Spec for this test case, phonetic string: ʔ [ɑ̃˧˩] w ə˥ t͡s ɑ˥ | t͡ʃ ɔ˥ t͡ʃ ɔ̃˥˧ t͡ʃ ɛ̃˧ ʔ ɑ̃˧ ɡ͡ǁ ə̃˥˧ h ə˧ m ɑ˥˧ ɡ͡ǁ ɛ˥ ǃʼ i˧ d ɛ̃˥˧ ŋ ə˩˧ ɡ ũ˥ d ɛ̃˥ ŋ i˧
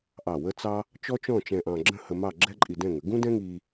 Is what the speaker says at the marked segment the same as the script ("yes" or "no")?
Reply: no